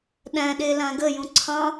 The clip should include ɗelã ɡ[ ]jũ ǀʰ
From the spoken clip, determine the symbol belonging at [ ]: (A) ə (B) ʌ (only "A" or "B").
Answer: A